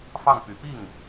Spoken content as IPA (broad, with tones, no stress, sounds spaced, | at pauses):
f ɑ˥˩ ŋ p y˨˩ p i˥˩ ŋ